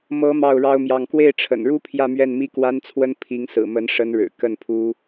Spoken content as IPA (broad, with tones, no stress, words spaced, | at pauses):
mɤ˧˥ mɑ˥˩ʊ̯ɻɑ˥ʊ̯mjɑ˥˧ŋ kwe˥˩ɪ̯ʈ͡ʂʰə̰˨˩nɻu˥ pʰjä˥˧mɥɛ˥˩nmi˥ kwa˥nt͡sʰwə˥n pʰi˧˥ŋsɹ̩˨˩mə˧˥n ʂə˧˥nɻɻ̩˨˩ kə˥˩npʰu˥